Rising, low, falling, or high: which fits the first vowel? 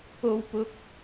high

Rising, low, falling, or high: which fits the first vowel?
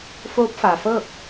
rising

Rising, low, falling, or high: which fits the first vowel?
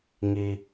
high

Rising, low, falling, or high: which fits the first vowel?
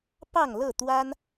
falling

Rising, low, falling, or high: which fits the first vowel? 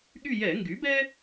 falling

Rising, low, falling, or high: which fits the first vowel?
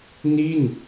falling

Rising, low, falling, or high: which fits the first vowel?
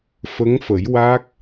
rising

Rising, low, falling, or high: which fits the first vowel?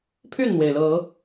falling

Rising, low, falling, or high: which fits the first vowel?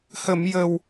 low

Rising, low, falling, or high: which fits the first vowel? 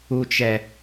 low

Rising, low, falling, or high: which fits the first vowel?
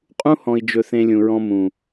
high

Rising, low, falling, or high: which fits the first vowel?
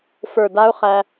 low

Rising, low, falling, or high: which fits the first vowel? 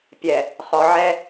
low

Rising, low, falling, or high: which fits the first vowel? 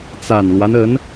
low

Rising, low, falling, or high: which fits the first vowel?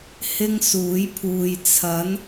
high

